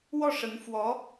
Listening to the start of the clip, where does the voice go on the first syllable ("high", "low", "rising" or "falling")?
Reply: falling